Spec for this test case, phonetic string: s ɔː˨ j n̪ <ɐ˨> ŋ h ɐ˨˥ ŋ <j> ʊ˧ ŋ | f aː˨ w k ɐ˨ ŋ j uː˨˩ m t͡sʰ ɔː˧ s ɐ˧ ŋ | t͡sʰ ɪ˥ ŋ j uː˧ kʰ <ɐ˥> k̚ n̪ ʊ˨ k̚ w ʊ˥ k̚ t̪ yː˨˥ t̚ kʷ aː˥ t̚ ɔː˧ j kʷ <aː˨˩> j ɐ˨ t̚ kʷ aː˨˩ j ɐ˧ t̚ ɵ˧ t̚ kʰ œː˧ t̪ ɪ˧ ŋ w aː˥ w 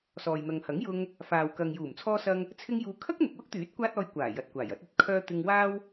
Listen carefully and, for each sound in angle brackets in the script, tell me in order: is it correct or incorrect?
correct, correct, correct, correct

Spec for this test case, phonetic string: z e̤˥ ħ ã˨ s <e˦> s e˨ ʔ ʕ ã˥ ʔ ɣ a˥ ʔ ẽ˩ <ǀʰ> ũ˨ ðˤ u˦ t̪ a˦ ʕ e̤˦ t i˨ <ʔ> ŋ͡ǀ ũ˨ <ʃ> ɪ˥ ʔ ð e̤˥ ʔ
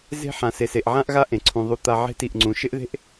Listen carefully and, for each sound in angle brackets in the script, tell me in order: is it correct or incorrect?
incorrect, correct, correct, correct

